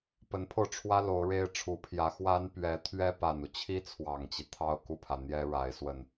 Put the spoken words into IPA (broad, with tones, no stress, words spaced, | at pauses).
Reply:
pə˧˥npʰo˧ʊ̯ʈ͡ʂʰwä˥ lo˧˥ʊ̯ɻe˥ɪ̯ʈ͡ʂʰu˧˥pʰjä˧˥ xwa˥npɥɛ˧˥ t̪ʰɥɛ˥pa˨˩nu˦ t͡ɕʰi˥t͡sʰwɑ˨˩ŋt͡ɕi˦ t̪ʰɑ˥˧ʊ̯ku˥˩pʰä˩ n̪jɛ˥ ɻa˧˥ɪ̯swə˥˩n